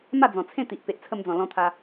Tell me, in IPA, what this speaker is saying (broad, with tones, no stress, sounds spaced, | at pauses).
m a˥˧ d͡z ɔ̃˨˩ t͡sʰ ẽ˥˧ t̪ i˨ ʔ p e˨ ʔ t͡sʰ ə˧ m d͡z ɔ̃˨˩ l ɔ̃˧ t̪ʰ a˧